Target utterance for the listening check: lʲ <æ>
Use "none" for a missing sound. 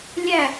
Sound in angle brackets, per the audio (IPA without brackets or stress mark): æ